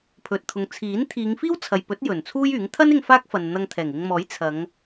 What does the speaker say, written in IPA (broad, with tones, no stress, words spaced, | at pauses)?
pʰɵ˨t̚t̪ʰʊ˨ŋ t͡sʰiː˨˥nt̪ʰiː˨˧ŋ fiː˥wt͡sʰɐ˨jpɵ˨˥t̚ jɵ˨˩nt͡sʰuː˥jyː˨˥ŋ t̪ʰɐ˥nɪ˧ŋ faː˥k̚fɐ˨n n̪ɐ˧ŋt̪ʰɛː˨˩ŋɪ˧ŋmɔː˨˥j t͡sʰɐ˨˧ŋ